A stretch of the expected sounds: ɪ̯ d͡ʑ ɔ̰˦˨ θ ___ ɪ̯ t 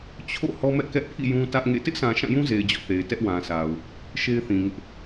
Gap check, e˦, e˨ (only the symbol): e˨